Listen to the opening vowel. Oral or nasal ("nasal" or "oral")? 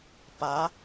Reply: oral